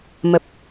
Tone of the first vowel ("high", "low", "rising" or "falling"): low